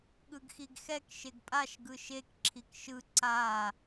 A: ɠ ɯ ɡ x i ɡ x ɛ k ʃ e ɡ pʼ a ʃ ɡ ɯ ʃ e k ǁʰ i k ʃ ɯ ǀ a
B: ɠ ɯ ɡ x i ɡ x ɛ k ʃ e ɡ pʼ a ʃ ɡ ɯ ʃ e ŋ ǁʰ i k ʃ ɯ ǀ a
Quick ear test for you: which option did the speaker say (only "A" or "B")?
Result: A